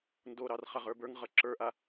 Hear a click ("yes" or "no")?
yes